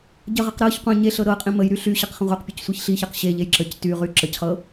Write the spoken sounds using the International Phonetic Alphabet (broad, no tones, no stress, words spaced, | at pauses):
ɟəʁəq ɾɤç qʷə̃ ɲeɬɤ ɾɤ qʼĩməjɾy ɬyɕəq χə̃ʁʷaqpʲɤc sʷiçɬiçaq ɕeʎej ǁəc tyʁy ǁəcχɤ